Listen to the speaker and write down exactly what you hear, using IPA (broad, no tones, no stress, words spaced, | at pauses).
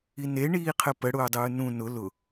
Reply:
ine ɳiːqʰəpə ɽʊːdˤɯːnũ nʊ lʊ